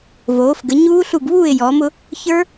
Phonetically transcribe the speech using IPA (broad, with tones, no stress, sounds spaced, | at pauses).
v oː˩˧ f ɡ ə˩˧ ɲ uː˦˥ ɬ u˦˨ ɡ β uː˦˨ ɪ̯ j ɔː˩˧ m ʊ˩˧ | ç ə˞˦˥